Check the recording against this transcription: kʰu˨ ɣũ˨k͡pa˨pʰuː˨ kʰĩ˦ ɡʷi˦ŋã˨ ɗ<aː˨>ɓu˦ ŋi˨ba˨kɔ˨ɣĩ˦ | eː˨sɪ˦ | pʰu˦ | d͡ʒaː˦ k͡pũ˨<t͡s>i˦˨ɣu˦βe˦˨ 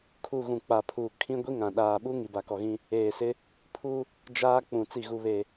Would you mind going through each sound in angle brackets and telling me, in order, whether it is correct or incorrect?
correct, correct

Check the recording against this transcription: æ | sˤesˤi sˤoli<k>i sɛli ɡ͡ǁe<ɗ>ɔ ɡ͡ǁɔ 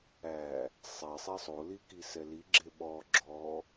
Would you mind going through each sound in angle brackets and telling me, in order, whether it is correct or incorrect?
correct, incorrect

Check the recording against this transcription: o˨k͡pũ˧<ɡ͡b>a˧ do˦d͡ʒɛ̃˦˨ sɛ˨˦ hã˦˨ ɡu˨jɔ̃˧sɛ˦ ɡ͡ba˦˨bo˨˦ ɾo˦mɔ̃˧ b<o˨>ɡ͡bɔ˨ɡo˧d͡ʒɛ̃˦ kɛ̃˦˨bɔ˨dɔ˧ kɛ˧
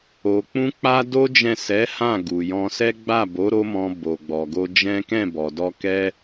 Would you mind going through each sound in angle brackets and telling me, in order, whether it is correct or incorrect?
incorrect, correct

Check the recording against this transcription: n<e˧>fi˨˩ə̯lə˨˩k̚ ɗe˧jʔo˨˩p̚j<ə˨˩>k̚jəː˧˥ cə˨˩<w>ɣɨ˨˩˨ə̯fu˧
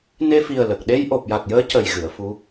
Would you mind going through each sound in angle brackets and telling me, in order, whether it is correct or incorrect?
correct, incorrect, incorrect

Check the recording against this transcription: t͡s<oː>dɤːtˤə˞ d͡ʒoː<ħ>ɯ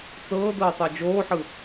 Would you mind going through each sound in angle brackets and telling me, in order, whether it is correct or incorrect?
incorrect, correct

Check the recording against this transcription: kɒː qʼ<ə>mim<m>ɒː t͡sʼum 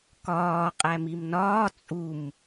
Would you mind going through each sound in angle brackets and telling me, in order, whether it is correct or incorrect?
incorrect, incorrect

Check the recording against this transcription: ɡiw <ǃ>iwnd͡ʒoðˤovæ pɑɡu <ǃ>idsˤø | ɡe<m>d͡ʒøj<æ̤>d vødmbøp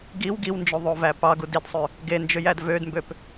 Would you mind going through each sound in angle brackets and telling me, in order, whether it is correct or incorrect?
incorrect, incorrect, incorrect, incorrect

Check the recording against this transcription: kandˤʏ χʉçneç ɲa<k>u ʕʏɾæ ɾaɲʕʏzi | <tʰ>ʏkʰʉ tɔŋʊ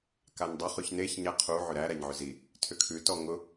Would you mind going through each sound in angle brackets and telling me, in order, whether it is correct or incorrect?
incorrect, correct

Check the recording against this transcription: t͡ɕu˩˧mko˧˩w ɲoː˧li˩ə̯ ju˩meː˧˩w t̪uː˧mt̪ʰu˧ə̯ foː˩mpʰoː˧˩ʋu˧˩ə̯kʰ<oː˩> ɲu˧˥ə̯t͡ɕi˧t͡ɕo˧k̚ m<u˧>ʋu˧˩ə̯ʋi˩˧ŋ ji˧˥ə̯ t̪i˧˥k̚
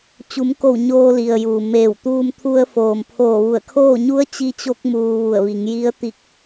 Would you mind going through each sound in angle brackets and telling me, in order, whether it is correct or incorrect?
incorrect, incorrect

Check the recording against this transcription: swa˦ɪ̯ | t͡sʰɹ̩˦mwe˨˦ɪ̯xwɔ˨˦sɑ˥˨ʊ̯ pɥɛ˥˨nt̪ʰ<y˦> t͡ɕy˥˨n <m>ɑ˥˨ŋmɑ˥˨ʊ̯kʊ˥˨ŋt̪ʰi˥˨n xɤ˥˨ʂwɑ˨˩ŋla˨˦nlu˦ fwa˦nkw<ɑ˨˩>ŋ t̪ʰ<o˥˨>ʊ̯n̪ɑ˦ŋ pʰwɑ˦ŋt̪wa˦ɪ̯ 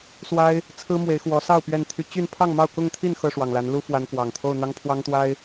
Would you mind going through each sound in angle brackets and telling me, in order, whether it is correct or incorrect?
correct, incorrect, correct, correct

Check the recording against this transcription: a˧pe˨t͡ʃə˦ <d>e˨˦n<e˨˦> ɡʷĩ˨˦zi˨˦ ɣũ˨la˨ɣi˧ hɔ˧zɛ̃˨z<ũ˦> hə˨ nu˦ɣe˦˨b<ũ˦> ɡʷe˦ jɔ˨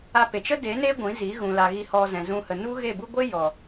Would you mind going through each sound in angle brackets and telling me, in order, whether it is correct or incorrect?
correct, incorrect, incorrect, incorrect

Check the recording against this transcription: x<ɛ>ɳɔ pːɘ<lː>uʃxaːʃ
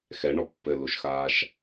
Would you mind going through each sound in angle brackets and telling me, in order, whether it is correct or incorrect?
correct, incorrect

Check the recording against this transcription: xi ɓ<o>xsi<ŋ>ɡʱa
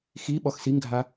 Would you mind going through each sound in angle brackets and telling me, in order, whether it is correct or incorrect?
incorrect, correct

